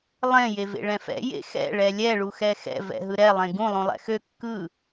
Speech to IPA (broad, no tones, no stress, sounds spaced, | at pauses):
lˠ ẽ j e v ḛ ɭ ɛ̃ f ɛ̰ j ḛ x ɛ̰ ɭ ɛ lʲ ɛ ɭ u x ɛ x ɛ̰ v ɛ̰ ɦ ɯ ɾ ɛ lˠ ẽ ɡ ũ lˠ ũ lˠ ɛ̰ x ø kː ɯ